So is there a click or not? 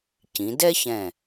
no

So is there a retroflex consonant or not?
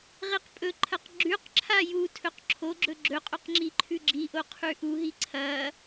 no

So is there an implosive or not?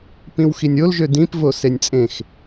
no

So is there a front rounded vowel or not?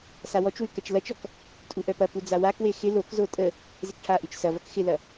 yes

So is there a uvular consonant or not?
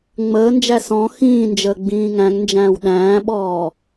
no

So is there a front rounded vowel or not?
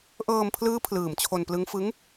no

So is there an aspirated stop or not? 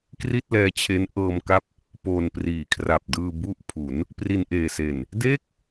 yes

